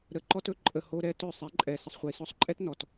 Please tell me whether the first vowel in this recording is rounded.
no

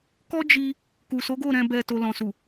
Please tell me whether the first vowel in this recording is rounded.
yes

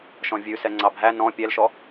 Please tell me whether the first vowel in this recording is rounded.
yes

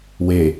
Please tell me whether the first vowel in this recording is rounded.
no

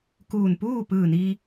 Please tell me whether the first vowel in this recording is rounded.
yes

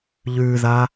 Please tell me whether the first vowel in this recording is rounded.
yes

